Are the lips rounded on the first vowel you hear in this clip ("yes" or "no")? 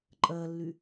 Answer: no